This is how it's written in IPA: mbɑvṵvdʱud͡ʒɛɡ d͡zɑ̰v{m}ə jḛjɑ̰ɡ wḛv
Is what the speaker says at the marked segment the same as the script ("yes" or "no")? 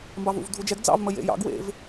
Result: yes